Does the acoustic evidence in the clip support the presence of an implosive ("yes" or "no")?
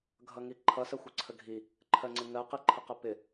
no